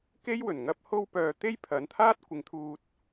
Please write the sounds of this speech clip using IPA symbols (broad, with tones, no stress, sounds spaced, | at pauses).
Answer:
k e˥ j w ɵ˨˩ n ŋ ɐ˥ p̚ h o˥ w p œː˧ t̪ e˥ j pʰ ɐ˨˥ n t̪ʰ aː˥ t̚ kʷ ɪ˨˥ ŋ t̪ʰ uː˧ t̚